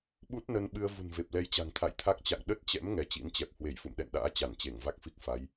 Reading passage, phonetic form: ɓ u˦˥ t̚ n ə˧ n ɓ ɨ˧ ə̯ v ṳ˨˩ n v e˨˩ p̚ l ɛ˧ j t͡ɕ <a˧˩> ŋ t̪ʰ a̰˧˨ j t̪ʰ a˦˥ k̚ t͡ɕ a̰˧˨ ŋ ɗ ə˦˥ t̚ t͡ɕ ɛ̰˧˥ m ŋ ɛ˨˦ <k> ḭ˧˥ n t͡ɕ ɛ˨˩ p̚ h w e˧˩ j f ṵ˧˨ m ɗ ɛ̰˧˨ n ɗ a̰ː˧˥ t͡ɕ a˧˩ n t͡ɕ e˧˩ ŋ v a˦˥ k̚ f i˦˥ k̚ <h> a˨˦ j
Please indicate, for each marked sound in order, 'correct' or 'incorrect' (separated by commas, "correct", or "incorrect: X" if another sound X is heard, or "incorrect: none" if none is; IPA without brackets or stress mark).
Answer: incorrect: a̤˨˩, incorrect: t͡ɕ, incorrect: f